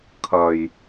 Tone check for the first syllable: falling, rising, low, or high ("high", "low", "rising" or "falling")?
low